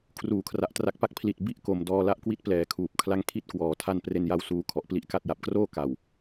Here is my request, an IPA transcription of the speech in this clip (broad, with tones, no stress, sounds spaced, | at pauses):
kʰ r uː˨˩ kʰ r a˨˩ ʔ t r a˦˥ k̚ p a˦˥ k̚ pʰ l i˨˩ t̚ b i˥˩ ʔ k o˩˦ m d ɔː˧ l a˥˩ ʔ k w i˥˩ t̚ p l ɛː˩˦ kʰ uː˨˩ p̚ kʰ l a˦˥ ŋ kʰ i˥˩ t̚ k w ɔː˩˦ tʰ a˥˩ n p r e˧ n j a˧ w s uː˧ kʰ ɔ˨˩ ʔ p l i˥˩ ʔ k a˥˩ t̚ j a˨˩ p̚ k r oː˥˩ k a˨˩ w